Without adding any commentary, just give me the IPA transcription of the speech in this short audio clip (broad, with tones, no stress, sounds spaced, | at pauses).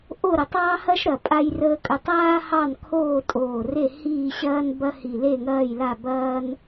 ʔ o˦˨ ɾ ə˨˩ tˤ ɑ˦ h ɐ˦ ʃ ɾ ɐ˨˩ pʼ a˦ j r əː˦ kʼ ɵ˦˨ tˤ aː˦ h ɑ˦˨ n kʰ oː˦˨ tʼ oː˨˩ r e˦˨ h iː˦˨ ɕ ɐː˦ n b ɐ˦ h i˨˩ l e˦˨ ŋ ɐː˦˨ j l a˦˨ b ɐː˦ n